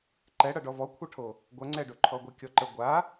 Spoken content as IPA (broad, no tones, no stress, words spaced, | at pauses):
ǃɛɽʌ ɖɔvɔkʷʰʌʈʰo | ɡʷɐŋ͡ǀɛɖo ǃʰɔɡʷekʲɔǃə ɡʷa